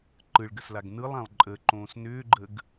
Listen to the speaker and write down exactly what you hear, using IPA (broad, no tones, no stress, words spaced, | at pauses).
ǃɯɭɡəslaɡ nɯlˠãlˠ ǃʼəǃõːs nʏːɡ͡ǃəɡ